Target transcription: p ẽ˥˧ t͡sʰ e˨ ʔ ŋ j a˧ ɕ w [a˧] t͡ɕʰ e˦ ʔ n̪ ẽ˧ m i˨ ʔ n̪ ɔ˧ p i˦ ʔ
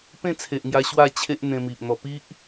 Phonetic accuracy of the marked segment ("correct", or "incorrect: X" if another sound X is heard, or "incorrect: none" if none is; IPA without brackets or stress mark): incorrect: a˥˧